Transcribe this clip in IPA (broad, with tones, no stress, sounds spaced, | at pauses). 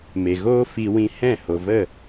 m e˨ ɣ oː˦ f i˧ w ĩ˧ h ɛ̃˦˨ h o˨ v ə˦˨